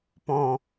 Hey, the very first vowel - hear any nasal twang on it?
yes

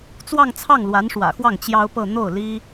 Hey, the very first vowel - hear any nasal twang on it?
no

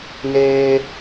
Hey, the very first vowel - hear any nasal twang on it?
no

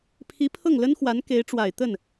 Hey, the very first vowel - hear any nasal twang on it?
no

